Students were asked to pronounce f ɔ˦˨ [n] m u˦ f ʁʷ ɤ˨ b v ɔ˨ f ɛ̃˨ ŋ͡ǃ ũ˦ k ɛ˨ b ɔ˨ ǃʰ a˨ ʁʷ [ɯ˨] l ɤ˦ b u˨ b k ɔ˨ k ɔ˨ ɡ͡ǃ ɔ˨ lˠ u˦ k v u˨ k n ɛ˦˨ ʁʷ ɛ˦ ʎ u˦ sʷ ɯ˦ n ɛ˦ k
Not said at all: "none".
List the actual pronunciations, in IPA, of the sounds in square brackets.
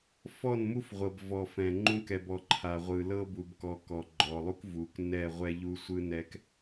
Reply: n, ɯ˨

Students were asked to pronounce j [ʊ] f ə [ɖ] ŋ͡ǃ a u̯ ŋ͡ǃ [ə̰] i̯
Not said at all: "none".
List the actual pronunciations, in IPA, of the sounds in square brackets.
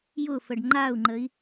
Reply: ʊ, ɖ, ə

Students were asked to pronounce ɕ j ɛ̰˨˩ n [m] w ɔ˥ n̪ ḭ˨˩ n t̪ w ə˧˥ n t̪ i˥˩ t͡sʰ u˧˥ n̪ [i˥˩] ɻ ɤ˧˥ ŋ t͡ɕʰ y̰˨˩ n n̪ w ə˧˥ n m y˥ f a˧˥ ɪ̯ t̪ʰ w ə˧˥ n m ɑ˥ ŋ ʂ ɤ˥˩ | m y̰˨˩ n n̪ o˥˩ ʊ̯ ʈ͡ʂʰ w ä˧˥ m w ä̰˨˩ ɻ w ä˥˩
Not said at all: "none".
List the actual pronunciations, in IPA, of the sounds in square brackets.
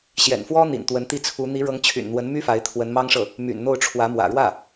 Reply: f, i˧˥

